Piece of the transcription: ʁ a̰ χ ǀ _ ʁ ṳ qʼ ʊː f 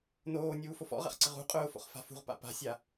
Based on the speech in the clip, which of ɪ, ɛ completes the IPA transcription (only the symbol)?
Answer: ɪ